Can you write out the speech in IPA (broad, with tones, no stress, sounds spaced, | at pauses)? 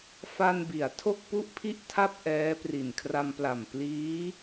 f a˧ n b i˩˦ a̯ tʰ o˥˩ k̚ p u˥˩ ʔ pʰ i˥˩ ʔ tʰ a˥˩ p̚ ʔ ɛː˦˥ p r i˨˩ n kʰ r a˧ m p l a˨˩ m p l iː˦˥